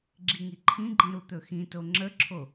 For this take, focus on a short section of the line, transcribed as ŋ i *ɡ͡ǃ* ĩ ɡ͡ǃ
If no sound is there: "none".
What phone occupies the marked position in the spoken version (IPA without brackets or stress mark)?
ǃʰ